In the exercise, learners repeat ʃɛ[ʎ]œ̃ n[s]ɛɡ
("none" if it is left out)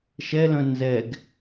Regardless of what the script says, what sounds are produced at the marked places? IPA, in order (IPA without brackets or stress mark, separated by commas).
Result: l, z